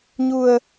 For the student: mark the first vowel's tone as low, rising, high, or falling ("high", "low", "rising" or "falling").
low